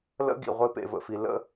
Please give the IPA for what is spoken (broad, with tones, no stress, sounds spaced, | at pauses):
l ə̰˦ ɡ ḭ˨ ʁʷ e˧ p ḛ˨ v ə̰˨ f i˨ l ə̰˧